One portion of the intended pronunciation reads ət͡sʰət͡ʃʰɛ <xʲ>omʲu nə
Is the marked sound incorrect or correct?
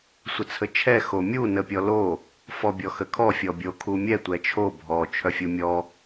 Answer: incorrect